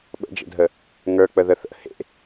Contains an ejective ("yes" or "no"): no